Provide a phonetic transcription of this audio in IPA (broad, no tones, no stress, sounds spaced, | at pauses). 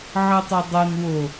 ʕ ɤ tˤ œ dˤ ɤ n w o